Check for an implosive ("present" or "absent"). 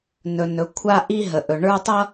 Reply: absent